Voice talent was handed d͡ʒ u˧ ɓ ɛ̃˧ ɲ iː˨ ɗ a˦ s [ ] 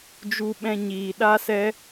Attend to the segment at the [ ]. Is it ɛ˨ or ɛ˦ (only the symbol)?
ɛ˦